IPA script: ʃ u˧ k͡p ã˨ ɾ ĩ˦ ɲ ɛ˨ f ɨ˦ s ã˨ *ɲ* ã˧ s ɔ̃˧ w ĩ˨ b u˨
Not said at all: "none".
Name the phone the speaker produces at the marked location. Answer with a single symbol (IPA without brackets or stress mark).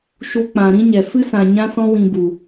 ɲ